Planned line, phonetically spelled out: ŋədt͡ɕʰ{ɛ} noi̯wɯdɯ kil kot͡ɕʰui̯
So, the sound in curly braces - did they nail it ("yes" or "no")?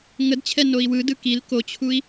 yes